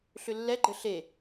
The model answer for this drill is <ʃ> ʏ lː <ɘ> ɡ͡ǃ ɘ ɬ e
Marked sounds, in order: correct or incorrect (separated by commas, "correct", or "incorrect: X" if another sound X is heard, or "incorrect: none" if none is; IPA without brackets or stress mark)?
incorrect: ɬ, incorrect: ɛ